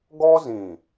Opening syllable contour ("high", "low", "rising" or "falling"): high